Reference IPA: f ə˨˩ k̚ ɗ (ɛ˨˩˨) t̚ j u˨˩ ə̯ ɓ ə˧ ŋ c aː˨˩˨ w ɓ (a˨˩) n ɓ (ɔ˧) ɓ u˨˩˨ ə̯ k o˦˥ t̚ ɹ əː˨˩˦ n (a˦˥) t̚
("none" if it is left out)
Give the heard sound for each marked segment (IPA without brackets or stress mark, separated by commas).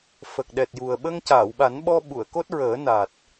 ɛ˨˩, a˨˩˦, ɔ˧, a˨˩